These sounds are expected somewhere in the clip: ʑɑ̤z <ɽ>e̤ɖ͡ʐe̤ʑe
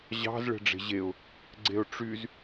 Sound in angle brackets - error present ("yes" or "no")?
yes